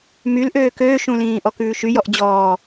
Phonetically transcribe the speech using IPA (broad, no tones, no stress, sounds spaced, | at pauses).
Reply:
m y l ʔ øː k øː ʃ ũ l ĩː ʔ ɔ k ʉː ʃ y j ɔ ʔ d͡ʑ ɔː